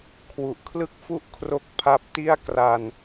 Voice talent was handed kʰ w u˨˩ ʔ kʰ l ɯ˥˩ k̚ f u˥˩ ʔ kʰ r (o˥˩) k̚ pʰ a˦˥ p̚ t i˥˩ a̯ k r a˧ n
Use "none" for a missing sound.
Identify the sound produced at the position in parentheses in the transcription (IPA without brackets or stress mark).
o˥˩